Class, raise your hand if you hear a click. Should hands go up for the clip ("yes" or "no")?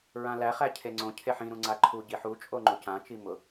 yes